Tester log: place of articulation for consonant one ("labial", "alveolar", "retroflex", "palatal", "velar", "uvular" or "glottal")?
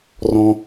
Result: alveolar